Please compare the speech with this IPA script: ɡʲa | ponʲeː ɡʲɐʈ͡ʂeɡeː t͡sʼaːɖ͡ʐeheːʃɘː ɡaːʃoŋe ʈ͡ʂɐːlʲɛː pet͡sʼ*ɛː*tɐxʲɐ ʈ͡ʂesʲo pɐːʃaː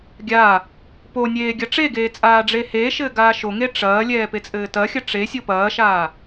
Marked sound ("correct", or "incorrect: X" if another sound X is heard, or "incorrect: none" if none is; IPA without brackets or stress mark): incorrect: ɘː